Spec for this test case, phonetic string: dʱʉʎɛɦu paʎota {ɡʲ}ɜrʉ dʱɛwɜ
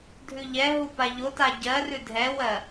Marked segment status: incorrect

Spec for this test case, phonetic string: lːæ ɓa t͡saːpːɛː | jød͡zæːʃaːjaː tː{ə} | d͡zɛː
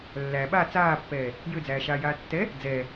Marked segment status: incorrect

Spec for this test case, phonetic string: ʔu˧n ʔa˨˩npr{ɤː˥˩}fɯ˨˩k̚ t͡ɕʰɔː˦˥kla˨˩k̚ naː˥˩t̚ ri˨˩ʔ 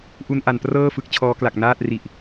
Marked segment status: correct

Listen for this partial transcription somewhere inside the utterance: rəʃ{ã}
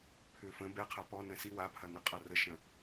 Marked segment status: incorrect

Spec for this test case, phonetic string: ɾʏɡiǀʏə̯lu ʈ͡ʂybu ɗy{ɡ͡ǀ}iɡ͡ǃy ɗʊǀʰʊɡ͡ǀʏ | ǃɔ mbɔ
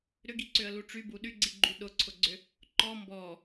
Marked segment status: correct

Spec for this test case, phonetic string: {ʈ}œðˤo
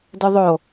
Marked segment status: incorrect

